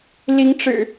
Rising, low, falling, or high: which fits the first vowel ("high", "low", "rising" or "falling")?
rising